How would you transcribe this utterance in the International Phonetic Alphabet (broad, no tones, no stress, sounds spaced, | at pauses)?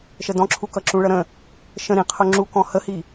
ʃ ə d ɔ̃ ǁʰ u k ʌ ǁ ũ ɭ ʌ ɾ ə̃ | ʃ ə̃ ɾ ĩ qʰ ʊ ŋ͡ǁ u k ɔ̃ h ə h i